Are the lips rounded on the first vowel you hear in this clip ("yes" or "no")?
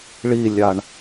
no